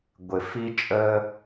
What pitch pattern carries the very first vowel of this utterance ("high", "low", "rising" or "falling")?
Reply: low